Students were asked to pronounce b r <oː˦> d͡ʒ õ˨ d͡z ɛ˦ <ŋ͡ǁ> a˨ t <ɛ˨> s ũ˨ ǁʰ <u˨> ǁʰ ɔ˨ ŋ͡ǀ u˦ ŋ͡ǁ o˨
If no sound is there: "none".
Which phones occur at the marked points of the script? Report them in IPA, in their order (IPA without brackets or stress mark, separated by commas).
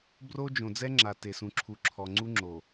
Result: o˦, ŋ͡ǁ, e˨, u˨